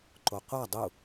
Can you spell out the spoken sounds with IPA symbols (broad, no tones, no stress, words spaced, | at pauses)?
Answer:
ǃoqʷa dˤu